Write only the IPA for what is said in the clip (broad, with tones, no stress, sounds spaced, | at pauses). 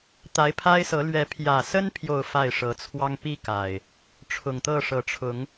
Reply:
t̪ a˨˦ ɪ̯ pʰ a˦ ɪ̯ s ɤ˨˦ l ɥ ɛ˨˦ pʰ j ä˨˩ s ə˦ n pʰ j o˥˨ ʊ̯ f a˥˨ ɪ̯ ʂ ɤ˨˦ t͡sʰ w ɑ˦ ŋ p i˦ k a˨˩ ɪ̯ | ʈ͡ʂʰ ʊ˨˩ ŋ t̪ ɤ˥˨ ʂ ɤ˨˦ ʈ͡ʂʰ ʊ˨˦ ŋ